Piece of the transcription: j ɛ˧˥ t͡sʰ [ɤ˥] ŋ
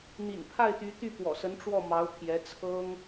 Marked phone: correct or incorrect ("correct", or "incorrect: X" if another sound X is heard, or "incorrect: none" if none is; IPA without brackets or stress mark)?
correct